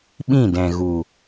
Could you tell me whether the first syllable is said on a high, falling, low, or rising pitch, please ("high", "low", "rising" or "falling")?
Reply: falling